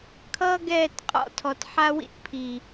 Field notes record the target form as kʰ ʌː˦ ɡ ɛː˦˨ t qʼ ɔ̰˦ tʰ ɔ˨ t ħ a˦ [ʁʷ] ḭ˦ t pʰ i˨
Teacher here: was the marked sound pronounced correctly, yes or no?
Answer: no